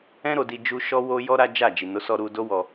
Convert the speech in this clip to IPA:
ɛ̃˦ ɾ o˧ d i˧ d͡ʒ u˦ ʃ ɔ˦ w o˦ j ɔ˦ ɾ a˦ d͡ʒ a˦˨ d͡ʒ i˨ n o˨˦ s ɔ˧ ɾ u˧ d o˦ w ɔ˧

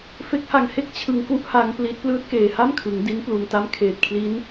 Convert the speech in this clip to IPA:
f e˦˥ k̚ h a˧ ŋ h e˥˩ k̚ t͡ɕʰ ɯ˧ ŋ k u˥˩ ʔ h a˧ ŋ p l i˦˥ t̚ p l ɯː˦˥ t̚ k eː˨˩ h a˥˩ m kʰ ɯ˩˦ ŋ d i˦˥ n p l u˨˩ n t a˥˩ m kʰ eː˨˩ t̚ kʰ l i˦˥ n

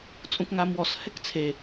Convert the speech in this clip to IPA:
t͡sʼ ũ k ŋ a m w ɔ s h ɛ k t͡sʰ e

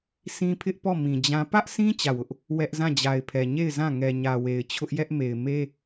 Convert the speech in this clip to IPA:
sʰ ĩ˦ pʰ ɪ˦ ʔ p ɔ˦˨ m ĩ˨ d͡ʑ ã˦ p ä˦ ʔ s ĩ˦ t͡ɕ ä˦˨ w ʊ˦ ʔ | w ɛ˦ ʔ z ã˦˨ d͡ʑ a˨ ɪ̯ pʰ ɛ˨ ɲ e˦˨ ɪ̯ z ã˦˨ ŋ ɛ˨ ɲ ä˨ w e˨ ɪ̯ t͡ɕʰ ʊ˦ ʔ j ɛ˦ ʔ m e˨ ɪ̯ m e˦

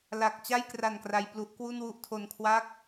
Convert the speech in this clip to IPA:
l a˨˩ k̚ t͡ɕ a˥˩ j k r a˨˩ n k r a˧ j p l u˦˥ ʔ k w u˥˩ n w u˥˩ ʔ tʰ o˧ n kʰ w a˦˥ k̚

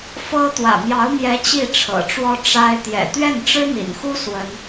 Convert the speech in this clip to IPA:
f ɤ˥ t̪ w ä̰˨˩ m j ɑ˧˥ ʊ̯ m j ɛ˧˥ t͡ɕ i˥˩ ʈ͡ʂʰ ɤ̰˨˩ ʈ͡ʂ w ɔ˥ ʈ͡ʂ a˥ ɪ̯ t̪ j ɛ̰˨˩ t̪ ɥ ɛ˥˩ n ʈ͡ʂ ɻ̩˥ n̪ ḭ˨˩ n x u˥ s w ə˥ n

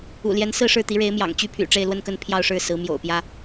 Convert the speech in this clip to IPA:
ṵ˨˩ l j ɛ˧˥ n s ɹ̩˥˧ ʂ ɻ̩˥˩ t̪ i˧˥ ɻ e˧˥ ɪ̯ m j ɑ̰˨˩ ŋ t͡ɕ y˥ pʰ y̰˨˩ ʈ͡ʂ e˥˧ ɪ̯ l w ə˥˧ n k ə˥˧ n pʰ j ɑ˥˧ ʊ̯ ʂ ɻ̩˥˩ s ɹ̩˧˥ m j o̰˨˩ ʊ̯ p j ä˥

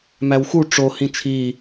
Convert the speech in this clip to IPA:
m æ w x u ʈ͡ʂ o h ĩ t͡ʃʰ i

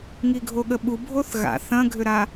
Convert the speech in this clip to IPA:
ŋ i ɡʱ o ɠ ə ɓ u bʱ o θ ɣ a̰ θ ɐ̃ ɡʱ ʏ ɾ a

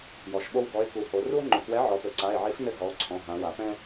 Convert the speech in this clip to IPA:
j ɔ˩˧ ʃ ɓ o˦ w ɡ ɔ˨˥ e̯ k u˩˧ h o˩˧ r u˦ o̯ ŋ͡ǃ ɵ˩˧ k w ɛ˨˥ ʕ ɔ˩˧ p ɵ˩˧ ǀ a˩˧˩ e̯ ʕ i˨˥ f n ɘ˦ ɦ ɔ˩˧˩ o̯ ǀʰ ɔ̃˩˧˩ ɦ ã˩˧ w a˩˧ p ɛ̃˦

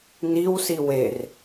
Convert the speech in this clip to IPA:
n i w s i w e r

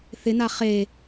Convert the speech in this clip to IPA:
θ ɪ n a χ e

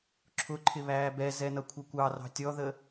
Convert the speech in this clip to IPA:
ǁʰ ʊ ǃʰ ɪ β æː b ɛ z ɛ n ʌ kʷʰ ʌ kʷ ɑ r ɑ̤ tʲ ɔ ð ə

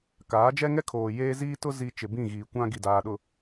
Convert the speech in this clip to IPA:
k aː˨˦ d͡ʒ ɛ˦ ŋ ɛ˦ kʰ oː˨ j eː˦ z iː˦ t ʊ˦ z i˦ t͡ʃ ɪ˨ b ĩ˦˨ ɣ iː˨ kʷ ã˦ ɡ i˨ d aː˨ ɗ ʊ˨

